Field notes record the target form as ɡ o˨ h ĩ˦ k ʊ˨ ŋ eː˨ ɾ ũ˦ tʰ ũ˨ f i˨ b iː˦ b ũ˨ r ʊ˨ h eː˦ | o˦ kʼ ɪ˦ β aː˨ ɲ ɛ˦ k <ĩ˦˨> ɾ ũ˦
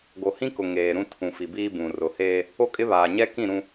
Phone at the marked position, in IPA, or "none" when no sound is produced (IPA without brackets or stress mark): ĩ˦˨